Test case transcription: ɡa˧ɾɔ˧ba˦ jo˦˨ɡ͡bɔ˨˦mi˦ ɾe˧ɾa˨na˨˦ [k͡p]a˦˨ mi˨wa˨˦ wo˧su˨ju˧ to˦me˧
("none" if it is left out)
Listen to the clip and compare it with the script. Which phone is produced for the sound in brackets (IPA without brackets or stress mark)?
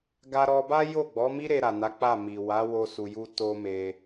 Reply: k͡p